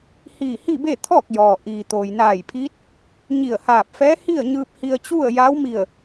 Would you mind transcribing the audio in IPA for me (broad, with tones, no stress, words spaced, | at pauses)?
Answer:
hiː˧˩hi˥˨be˥˨ t̪ʰɔː˥˨k̚jɔː˩ ʔiː˩t̪oː˩jnaː˧˩jpʰiː˧˥t̚ | ɲi˧˩ə̯haː˧˩p̚fɛː˧˥ hi˥˨ə̯ɲɯː˧p̚ hi˧ə̯t͡ɕu˥˨ə̯ja˧˥w mi˧˩ə̯